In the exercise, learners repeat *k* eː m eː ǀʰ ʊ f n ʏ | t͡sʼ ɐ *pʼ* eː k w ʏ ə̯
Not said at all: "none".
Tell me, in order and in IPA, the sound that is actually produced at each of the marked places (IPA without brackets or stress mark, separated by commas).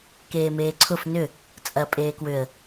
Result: k, pʼ